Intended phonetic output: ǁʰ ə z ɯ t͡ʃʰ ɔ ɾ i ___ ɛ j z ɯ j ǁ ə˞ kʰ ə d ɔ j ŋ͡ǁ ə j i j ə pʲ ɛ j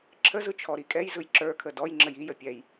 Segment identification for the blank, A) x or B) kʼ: B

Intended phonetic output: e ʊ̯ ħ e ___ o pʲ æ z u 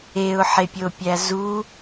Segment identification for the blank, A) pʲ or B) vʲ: A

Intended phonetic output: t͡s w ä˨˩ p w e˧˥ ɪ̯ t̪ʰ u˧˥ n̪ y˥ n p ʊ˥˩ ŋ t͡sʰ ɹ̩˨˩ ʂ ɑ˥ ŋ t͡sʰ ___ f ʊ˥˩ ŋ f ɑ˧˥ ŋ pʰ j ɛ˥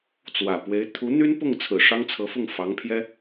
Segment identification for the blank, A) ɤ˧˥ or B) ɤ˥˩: A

